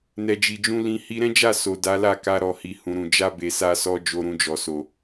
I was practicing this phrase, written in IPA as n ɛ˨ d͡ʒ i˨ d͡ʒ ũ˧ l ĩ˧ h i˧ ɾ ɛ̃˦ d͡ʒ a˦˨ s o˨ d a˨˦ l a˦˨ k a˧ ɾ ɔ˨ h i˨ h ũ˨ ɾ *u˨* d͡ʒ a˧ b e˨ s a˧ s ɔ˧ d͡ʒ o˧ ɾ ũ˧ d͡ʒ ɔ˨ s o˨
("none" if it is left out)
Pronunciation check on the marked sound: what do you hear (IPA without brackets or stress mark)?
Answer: ũ˨